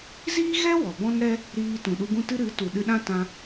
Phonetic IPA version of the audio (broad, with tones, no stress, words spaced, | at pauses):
ziː˦ɣɛ˦ wɔ˨bɔ̃˦nɾɛ˦ | ɾiː˧ tũ˨ɗu˧ɡũ˦tɨ˦ ɾɨ˨˦tu˨ ɗɨ˧ɗã˦tã˧